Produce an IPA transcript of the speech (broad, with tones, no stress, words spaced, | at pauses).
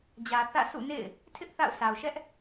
d͡ʑä˨ θä̰˦˨ sʰṵ˦˨nḛ˦˨ɪ̯ | tʰɪ˦ʔ θa̰˦˨ʊ̯sʰa˨ʊ̯ ʃɛ˦ʔ